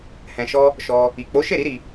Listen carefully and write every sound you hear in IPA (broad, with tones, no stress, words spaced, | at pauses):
hɛ̃˧ʃɔ˦ | ʃɔ˦ | i˨ k͡po˨˦ʃe˦˨ɾi˨˦ ɾi˧